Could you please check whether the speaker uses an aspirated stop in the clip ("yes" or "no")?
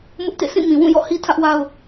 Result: yes